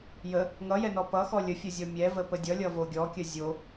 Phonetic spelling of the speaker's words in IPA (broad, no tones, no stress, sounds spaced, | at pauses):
j ə | ŋ ʌ j ɛ n ɔ p ʌ x ɔ lʲ ə fʲ ʌ zʲ ɔ mʲ ɛ v ə p ə dʲ ʌ lʲ ʌ v o ɡʲ ɔ kʲ ə zʲ o